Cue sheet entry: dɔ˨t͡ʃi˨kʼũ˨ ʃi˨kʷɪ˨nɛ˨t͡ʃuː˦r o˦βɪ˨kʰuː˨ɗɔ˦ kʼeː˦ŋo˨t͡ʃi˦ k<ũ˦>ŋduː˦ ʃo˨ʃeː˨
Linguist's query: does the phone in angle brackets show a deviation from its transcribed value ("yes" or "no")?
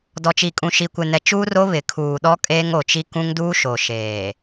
no